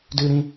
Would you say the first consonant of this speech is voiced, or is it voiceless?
voiced